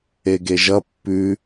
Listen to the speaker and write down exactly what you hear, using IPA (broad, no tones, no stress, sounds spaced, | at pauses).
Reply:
e ɡ e ʒ ʌ pː ʉ